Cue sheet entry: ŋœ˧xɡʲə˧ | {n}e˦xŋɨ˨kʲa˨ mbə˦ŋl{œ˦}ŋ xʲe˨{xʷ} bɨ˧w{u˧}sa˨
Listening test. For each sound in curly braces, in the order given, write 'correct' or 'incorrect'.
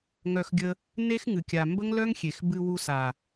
correct, correct, incorrect, correct

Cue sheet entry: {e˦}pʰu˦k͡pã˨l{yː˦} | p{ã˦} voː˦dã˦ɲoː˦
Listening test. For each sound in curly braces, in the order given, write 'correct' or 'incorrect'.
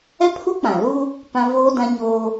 incorrect, incorrect, correct

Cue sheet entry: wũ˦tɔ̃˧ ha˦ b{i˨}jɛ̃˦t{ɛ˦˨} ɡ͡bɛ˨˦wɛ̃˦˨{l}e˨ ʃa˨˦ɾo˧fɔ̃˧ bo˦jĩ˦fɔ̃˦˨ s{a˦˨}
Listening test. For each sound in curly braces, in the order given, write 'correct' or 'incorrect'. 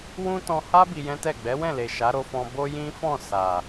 incorrect, correct, correct, incorrect

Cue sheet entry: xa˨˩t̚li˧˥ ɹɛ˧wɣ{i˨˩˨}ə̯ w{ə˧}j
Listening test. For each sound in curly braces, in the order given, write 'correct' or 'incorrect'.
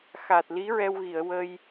correct, correct

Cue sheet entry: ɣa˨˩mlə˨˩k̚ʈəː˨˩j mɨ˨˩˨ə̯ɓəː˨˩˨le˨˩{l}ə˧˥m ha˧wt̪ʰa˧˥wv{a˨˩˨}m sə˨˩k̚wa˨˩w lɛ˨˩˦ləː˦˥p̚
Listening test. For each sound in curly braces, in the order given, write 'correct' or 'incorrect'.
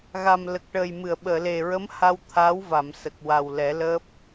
incorrect, correct

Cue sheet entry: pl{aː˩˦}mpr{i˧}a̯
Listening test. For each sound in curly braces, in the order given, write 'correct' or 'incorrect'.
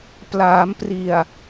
correct, incorrect

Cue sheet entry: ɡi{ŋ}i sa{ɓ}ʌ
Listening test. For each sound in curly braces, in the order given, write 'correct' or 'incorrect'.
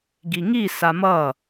correct, incorrect

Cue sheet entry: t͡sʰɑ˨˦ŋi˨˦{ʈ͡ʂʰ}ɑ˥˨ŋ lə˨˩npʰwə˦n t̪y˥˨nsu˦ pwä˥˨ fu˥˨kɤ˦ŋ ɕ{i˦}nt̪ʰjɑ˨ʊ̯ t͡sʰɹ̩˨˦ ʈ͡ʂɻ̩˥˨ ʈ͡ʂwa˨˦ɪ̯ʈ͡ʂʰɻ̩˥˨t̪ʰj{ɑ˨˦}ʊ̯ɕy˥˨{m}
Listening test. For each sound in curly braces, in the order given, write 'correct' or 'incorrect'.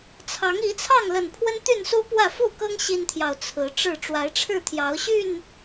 incorrect, correct, correct, incorrect

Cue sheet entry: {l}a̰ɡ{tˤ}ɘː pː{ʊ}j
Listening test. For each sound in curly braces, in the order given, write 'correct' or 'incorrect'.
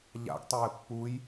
incorrect, correct, incorrect

